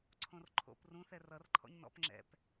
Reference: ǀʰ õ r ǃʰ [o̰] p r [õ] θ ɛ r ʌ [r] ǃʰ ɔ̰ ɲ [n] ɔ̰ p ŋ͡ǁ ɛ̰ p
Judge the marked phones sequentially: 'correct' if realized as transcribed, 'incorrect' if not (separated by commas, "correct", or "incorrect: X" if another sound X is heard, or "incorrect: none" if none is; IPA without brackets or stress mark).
correct, incorrect: ũ, correct, correct